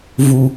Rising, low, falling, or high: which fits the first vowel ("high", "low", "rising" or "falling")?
low